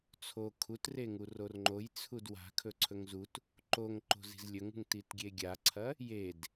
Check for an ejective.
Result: absent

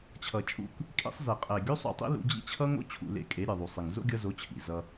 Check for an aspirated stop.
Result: present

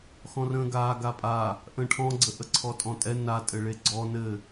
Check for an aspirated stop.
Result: present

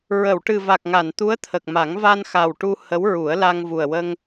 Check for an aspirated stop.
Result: present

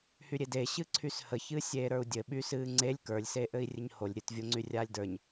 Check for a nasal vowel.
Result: absent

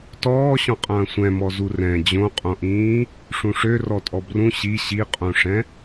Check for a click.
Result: absent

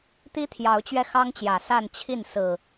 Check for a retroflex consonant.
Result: absent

